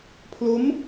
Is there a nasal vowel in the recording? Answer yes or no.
no